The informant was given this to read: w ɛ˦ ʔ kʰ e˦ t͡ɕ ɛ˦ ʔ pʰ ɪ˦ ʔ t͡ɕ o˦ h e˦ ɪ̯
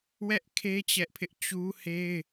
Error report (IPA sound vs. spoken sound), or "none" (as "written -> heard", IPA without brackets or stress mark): o˦ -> u˦